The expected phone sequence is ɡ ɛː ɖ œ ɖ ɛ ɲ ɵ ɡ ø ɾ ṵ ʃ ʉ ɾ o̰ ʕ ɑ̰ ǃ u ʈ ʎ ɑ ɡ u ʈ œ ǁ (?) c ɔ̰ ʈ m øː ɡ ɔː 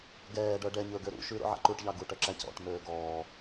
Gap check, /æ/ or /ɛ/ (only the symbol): æ